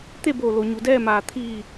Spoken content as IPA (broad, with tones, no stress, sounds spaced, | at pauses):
t̪ e˥˨ b oː˧˩ l o˩˧ ɲ u˩˧ d ɛː˥˨ m aː˧˩ t̪ʰ iː˧˩